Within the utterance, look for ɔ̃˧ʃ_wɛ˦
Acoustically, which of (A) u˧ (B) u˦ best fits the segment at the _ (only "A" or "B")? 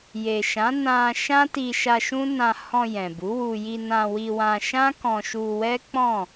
A